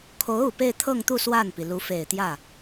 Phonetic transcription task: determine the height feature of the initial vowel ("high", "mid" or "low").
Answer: mid